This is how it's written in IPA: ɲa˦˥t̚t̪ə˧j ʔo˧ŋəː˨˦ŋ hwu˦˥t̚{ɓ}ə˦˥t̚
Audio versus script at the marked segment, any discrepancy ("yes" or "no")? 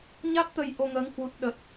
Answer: yes